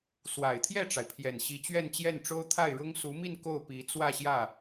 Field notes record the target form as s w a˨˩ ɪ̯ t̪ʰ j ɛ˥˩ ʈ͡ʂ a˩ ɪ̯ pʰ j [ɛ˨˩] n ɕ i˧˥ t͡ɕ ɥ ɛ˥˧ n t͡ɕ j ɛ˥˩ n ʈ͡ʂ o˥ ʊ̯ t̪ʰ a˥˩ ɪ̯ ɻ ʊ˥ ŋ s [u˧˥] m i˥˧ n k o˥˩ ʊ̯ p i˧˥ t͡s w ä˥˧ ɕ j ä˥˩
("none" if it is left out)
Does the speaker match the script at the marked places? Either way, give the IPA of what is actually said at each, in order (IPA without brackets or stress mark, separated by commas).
ɛ˨˩, u˧˥